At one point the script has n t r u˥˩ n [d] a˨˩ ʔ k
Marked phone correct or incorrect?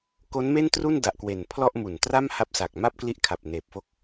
correct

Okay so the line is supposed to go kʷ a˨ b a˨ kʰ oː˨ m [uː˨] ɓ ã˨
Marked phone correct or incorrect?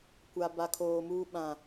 correct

